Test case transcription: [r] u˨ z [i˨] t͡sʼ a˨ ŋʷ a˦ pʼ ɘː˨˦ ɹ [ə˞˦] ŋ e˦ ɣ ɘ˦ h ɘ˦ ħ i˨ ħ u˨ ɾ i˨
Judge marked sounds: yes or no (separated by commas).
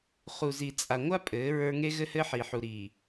no, yes, yes